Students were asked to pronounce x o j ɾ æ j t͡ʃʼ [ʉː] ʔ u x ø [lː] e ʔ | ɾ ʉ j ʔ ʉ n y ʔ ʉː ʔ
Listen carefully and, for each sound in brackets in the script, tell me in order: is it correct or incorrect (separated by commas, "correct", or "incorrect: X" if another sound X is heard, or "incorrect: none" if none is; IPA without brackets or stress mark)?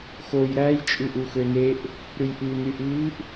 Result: incorrect: ʉ, incorrect: n